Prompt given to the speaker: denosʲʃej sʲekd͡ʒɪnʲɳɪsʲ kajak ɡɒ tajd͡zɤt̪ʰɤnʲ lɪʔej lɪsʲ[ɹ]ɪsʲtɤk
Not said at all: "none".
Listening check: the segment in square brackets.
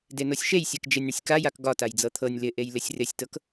r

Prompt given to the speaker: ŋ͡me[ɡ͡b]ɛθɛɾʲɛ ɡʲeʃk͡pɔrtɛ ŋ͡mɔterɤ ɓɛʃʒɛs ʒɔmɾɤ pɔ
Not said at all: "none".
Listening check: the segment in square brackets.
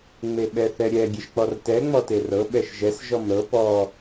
ɓ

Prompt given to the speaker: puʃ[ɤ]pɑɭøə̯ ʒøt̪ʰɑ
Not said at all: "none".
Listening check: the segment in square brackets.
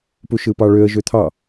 ɯ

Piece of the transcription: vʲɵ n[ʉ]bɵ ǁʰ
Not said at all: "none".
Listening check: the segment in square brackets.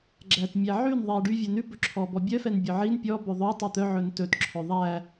ʉ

